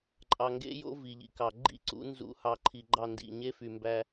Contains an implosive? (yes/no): no